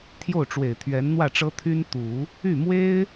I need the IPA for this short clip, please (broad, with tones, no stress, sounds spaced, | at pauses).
t̪ʰ j o˥˩ ʊ̯ ʈ͡ʂ w e˨˩ ɪ̯ t̪ʰ ɥ ɛ˧˥ n n̪ w ä˥˩ ʈ͡ʂ ɤ˥ t̪ʰ y˥ n t̪ u˨˩˦ | y˥˩ m w e˥ ɪ̯